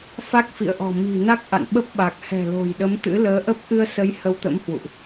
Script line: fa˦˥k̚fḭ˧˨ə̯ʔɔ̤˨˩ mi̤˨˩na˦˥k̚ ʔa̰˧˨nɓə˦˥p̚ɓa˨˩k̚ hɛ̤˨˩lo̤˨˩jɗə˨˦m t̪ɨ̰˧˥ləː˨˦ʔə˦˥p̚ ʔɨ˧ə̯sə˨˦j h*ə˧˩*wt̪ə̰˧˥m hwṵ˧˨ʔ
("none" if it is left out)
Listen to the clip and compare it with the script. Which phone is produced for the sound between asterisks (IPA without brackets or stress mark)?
ə˧